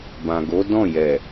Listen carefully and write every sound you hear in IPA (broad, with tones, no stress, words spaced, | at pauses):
bã˨ɡo˨˦dɔ̃˦˨jɛ˨